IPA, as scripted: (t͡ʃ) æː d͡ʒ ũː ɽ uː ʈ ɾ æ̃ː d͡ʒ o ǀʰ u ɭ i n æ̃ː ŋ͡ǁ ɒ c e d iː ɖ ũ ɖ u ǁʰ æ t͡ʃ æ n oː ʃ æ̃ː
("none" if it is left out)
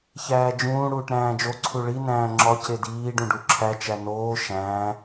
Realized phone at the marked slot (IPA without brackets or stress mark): ç